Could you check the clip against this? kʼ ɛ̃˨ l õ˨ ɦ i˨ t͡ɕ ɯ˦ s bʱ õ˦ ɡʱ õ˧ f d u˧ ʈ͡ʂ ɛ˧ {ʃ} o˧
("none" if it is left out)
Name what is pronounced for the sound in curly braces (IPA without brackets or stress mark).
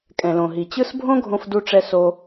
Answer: s